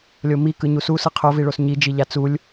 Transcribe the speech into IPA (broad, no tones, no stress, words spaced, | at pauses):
lʲomikɯ ɲususɯ qʰoviɭos ɲid͡ʒiʎa t͡sulʲ